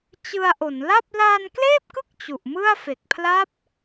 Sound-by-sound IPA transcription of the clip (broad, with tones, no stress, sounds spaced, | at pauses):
t͡ɕ ɯ˧ a̯ ʔ o˩˦ n l a˥˩ p̚ l aː˧ n k l eː˥˩ p̚ k ɯ˥˩ k̚ t͡ɕ u˨˩ ʔ m ɯ˥˩ a̯ f e˨˩ k̚ pʰ l a˦˥ p̚